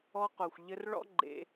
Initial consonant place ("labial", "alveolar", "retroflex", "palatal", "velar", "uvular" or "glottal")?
uvular